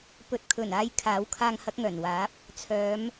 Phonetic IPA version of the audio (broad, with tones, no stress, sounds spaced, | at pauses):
p ɵ˨ t̚ kʰ ɵ˨˩ n aː˨˧ j kʰ aː˨˥ w kʰ aː˧ ŋ h ɐ˨˥ k̚ ŋ œː˨˩ n w aː˨˥ p̚ | t͡sʰ œː˨˧ m